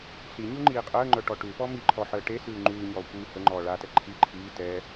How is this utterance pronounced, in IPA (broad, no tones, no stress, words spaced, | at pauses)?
ɬiɲʉ ŋ͡ǃiːqʼəːŋ͡ǃœ ʈɔʈʉpɔ miǃʰɔ ħəːʈesʉː ŋ͡ǃʉːɲɔː kʷiːhəŋ͡ǃɔː ɭatɛ ǃʰi ǃʰiː tɛ